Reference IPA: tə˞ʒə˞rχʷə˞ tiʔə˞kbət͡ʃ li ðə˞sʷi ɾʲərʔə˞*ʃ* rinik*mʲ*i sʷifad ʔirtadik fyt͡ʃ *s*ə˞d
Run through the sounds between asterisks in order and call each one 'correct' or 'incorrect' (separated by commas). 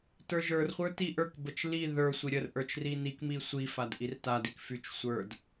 incorrect, incorrect, incorrect